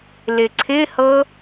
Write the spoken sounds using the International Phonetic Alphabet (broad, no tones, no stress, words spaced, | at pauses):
lɪǀʰɪhɤ